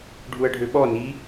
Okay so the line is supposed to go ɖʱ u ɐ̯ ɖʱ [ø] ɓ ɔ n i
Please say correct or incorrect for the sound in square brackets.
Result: correct